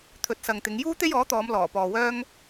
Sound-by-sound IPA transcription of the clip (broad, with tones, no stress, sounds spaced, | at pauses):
t̪ʰ ɵ˨ t̚ s ɐ˨ ŋ t̪ ɪ˨˧ ŋ j uː˥ t̪ e˥ j ɔː˨˥ t̪ ɔː˨˧ m l ɔː˨˩ p ɔː˨ w œː˥ ŋ